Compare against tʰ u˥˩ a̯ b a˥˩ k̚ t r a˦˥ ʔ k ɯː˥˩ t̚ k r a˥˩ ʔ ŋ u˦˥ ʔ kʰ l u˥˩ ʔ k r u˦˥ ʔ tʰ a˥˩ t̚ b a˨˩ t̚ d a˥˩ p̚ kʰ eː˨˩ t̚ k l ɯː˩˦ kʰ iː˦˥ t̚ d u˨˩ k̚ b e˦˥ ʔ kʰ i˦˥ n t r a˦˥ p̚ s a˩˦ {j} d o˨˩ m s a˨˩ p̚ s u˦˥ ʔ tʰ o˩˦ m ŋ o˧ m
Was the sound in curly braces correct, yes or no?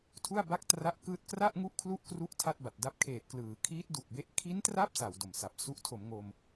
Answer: no